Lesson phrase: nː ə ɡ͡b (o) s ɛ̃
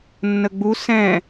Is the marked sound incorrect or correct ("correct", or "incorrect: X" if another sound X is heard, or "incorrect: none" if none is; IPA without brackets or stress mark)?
incorrect: u